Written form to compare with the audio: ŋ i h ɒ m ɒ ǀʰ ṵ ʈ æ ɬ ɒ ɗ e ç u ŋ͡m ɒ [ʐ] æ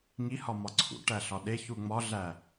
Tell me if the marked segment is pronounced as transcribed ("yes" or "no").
no